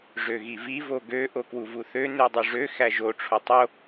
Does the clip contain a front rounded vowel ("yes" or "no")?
yes